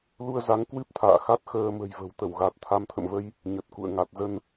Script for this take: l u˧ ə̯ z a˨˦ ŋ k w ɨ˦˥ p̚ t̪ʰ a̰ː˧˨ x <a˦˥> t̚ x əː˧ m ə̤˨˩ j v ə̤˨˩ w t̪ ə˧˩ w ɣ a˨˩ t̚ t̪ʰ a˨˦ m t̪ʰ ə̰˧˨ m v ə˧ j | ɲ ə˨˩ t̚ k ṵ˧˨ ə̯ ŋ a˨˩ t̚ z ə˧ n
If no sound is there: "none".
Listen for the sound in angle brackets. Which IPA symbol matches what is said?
a˦˥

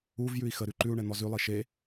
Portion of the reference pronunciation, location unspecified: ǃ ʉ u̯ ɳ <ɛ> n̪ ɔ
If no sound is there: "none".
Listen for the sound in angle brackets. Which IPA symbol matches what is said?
ɛ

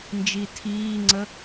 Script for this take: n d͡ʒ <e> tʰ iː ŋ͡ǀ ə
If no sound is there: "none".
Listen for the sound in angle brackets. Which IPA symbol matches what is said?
i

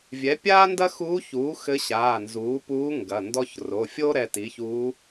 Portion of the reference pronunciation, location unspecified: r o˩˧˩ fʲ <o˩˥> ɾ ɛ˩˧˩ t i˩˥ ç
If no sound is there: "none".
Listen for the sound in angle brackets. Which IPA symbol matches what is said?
o˥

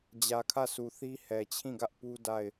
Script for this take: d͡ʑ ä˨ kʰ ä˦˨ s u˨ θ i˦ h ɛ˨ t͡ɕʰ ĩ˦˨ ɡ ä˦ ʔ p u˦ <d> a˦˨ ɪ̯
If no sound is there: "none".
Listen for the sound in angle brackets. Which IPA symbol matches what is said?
d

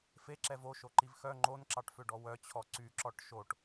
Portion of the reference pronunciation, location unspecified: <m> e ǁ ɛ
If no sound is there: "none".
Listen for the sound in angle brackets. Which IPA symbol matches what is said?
f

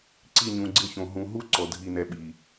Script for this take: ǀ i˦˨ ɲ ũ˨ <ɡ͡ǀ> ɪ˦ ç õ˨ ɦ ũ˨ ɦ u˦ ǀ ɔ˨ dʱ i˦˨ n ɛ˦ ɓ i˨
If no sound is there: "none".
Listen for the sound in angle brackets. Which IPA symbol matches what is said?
ɡ͡ǀ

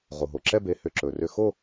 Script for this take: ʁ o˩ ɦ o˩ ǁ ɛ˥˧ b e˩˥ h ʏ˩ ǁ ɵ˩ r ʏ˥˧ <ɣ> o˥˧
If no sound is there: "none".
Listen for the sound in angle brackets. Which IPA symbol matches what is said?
x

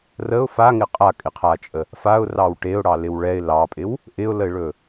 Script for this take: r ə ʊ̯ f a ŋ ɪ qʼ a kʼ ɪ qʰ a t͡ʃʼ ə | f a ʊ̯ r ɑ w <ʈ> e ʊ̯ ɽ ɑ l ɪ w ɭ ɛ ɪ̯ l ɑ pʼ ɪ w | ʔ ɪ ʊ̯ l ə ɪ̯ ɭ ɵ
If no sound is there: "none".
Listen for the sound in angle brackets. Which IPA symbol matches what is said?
ʈ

